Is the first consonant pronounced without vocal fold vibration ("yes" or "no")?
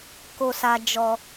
yes